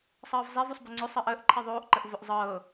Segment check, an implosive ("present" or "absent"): absent